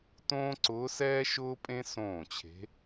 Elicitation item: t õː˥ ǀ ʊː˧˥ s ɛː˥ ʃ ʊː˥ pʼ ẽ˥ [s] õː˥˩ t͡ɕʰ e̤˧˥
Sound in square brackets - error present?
no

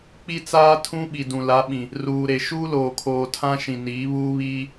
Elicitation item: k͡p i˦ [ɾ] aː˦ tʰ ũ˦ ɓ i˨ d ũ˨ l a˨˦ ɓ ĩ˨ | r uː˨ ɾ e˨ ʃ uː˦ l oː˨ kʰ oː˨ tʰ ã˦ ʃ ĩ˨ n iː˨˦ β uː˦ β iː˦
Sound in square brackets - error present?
yes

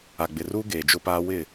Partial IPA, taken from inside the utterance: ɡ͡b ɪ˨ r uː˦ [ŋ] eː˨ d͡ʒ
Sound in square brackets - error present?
yes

